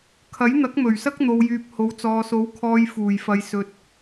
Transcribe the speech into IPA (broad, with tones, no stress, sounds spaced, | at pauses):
kʰ ɐ˨˥ j n̪ ɐ˨˥ k̚ m ɵ˨˩ ɥ s ɐ˥ k̚ n̪ o˨ w j yː˨ p̚ h o˨˥ w t͡s ɔː˨ s o˨˥ w kʰ ɔː˨˧ j f uː˨˩ j f ɐ˨˧ j s ɵ˨ t̚